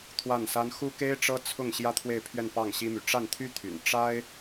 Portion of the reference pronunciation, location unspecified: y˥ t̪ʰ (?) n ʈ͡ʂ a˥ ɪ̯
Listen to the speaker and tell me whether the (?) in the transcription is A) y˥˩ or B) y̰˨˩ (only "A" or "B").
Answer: B